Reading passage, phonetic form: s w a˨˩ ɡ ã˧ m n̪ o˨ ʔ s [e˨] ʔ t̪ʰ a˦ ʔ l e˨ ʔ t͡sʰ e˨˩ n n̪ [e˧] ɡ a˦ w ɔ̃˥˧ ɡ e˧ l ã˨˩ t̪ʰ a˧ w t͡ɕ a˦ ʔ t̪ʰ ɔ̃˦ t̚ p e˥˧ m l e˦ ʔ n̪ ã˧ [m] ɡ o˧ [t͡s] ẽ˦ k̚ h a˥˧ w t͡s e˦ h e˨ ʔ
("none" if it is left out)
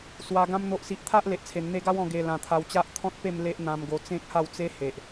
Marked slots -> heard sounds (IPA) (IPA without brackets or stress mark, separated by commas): i˨, e˧, m, t͡s